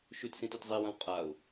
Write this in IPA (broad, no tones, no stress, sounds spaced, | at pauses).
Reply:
ʃ ʉ t s ĩ t e t zˤ i w ɐ̃ w qʼ a ʊ̯